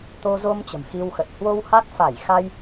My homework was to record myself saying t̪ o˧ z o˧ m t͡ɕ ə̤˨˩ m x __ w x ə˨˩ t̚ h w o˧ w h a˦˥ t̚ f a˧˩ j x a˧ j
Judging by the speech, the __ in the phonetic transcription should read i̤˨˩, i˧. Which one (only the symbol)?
i˧